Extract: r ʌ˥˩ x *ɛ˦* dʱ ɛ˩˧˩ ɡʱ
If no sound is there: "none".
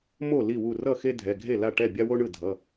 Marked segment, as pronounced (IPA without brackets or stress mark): e˦